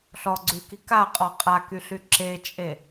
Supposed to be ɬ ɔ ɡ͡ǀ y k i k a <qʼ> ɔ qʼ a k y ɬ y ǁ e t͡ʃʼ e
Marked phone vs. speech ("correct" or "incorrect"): correct